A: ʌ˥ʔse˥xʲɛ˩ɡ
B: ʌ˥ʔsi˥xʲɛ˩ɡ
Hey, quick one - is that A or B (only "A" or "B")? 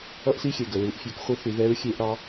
B